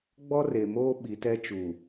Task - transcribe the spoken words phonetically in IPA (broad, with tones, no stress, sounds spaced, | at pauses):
ɡ͡b ɔ˦ r e˨ m oː˦ ɓ i˨ t ɛ˦ t͡ʃ u˨